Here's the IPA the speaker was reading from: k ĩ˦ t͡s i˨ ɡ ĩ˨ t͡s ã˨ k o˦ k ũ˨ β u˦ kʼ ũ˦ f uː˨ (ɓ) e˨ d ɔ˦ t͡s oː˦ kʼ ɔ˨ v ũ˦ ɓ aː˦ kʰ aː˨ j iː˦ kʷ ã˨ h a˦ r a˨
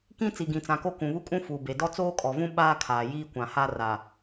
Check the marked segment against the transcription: incorrect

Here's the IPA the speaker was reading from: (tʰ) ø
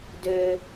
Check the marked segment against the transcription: incorrect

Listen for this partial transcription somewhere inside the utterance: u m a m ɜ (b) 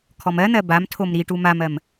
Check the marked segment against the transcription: incorrect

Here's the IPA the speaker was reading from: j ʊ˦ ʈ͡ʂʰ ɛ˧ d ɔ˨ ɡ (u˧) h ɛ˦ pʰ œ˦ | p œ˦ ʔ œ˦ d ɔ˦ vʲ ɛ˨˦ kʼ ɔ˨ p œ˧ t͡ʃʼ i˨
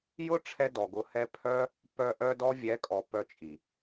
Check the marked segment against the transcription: incorrect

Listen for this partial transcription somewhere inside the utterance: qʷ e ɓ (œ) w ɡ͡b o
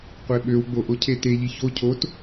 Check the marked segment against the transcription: incorrect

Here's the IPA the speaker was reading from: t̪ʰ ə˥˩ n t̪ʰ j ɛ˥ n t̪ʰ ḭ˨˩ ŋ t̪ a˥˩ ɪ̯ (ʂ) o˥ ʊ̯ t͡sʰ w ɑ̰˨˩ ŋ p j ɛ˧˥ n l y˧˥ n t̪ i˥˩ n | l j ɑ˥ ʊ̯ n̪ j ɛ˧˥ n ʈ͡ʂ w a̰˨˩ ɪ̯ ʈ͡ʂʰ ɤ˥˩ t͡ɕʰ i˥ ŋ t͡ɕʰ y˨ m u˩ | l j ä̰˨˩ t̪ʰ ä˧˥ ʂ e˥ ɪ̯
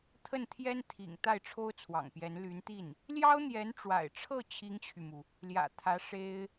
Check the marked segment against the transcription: incorrect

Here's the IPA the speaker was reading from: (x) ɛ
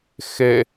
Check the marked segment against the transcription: correct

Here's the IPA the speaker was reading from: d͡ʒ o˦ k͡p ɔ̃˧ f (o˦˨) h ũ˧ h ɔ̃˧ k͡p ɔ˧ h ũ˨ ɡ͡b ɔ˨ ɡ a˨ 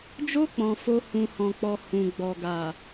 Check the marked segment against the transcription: incorrect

